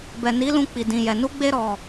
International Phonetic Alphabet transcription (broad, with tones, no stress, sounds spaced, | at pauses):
b ɛ˨ n i˨˦ l ũ˧ k͡p i˨ d ĩ˨ j ɛ˨ n u˧ ɡ͡b e˧ ɾ ɔ˨